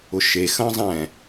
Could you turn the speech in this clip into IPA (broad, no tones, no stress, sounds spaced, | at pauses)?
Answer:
ʊ ʃ e x ɐ̃ zˤ ɛ̃